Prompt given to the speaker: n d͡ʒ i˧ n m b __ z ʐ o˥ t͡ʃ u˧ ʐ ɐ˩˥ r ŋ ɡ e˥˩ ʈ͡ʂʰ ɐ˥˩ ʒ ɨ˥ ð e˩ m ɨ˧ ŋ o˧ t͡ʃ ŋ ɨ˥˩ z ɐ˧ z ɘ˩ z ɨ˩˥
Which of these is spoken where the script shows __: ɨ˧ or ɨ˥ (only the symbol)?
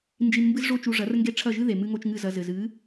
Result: ɨ˥